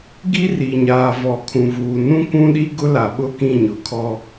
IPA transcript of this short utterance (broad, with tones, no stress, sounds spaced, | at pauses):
ɡ i˦ r i˨ ɲ aː˨ v ɔ˨ kʰ ũ˨ v uː˨ n ũ˦ k ũ˦ ɗ i˦ ɡ ʊ˦ l a˨ ɓ ʊ˦˨ k ĩ˦˨ ɲ ʊ˨ kʰ ɔ˦